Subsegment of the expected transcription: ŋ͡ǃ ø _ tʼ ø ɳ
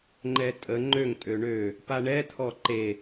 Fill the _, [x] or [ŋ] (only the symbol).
ŋ